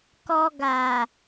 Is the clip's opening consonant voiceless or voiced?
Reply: voiceless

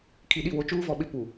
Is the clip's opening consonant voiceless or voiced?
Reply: voiceless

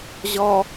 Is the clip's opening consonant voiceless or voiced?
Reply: voiced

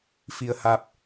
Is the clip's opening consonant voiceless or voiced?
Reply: voiceless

